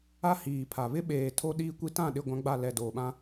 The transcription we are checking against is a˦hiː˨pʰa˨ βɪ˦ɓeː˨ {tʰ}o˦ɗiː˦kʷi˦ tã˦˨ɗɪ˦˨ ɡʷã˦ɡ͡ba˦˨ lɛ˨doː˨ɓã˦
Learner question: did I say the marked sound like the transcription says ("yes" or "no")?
yes